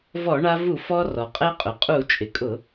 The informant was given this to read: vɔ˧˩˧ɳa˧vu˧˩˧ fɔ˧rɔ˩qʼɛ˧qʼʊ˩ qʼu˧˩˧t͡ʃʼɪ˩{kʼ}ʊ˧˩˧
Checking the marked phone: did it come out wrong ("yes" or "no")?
no